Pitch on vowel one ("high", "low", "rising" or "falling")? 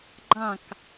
falling